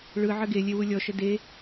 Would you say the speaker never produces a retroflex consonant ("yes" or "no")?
no